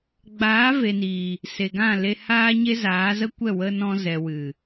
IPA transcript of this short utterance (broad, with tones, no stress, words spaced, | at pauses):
ɡ͡baː˨˦ve˨niː˨ | se˨ɡã˦˨le˧haː˦ ɲe˦zaː˨˦zə˦kʷɛ˦˨ wə˦nɔ̃˦ zɛ˨wɨ˨